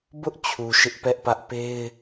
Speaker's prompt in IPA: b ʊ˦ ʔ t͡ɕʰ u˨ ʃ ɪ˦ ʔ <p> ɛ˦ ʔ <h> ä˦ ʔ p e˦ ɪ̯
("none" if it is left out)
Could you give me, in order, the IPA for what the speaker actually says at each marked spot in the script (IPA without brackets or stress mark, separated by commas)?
p, p